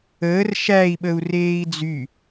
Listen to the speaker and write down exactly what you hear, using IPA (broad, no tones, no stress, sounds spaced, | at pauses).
əː r ʃ æ i̯ ɓ ə u̯ r eː i̯ d͡z y